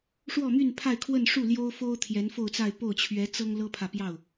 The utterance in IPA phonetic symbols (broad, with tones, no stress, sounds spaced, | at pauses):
ʂ w ɔ˥˧ m y˥˧ n pʰ a˥˧ ɪ̯ kʰ w ə˥˧ n ʂ u˥˩ l j o˥ ʊ̯ f o˥ ʊ̯ t̪ʰ j ɛ˧˥ n f o˥˧ ʊ̯ t͡s a˥˧ ɪ̯ p o˥˩ ʊ̯ t͡ɕʰ ɥ ɛ˧˥ t͡s ɤ˥ ŋ l ɤ˥ pʰ ä˨ p j ɑ˥˩ ʊ̯